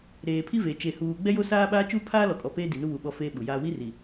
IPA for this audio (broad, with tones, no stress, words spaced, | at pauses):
ɾeː˨pʰi˦veː˨ t͡ʃe˨ huː˨ ɡ͡bɛ˦jo˦saː˦ɓaː˦ t͡ʃuː˦pʰaː˦lɔ˨kʼɔ˨ peː˦ di˨nu˦βu˨ ɓɔ˦feː˦ɓu˨jaː˦ wi˦ri˨